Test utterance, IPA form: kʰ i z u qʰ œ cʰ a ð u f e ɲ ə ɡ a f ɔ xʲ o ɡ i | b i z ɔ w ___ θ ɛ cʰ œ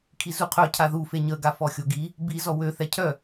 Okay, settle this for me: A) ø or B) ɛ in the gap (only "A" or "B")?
A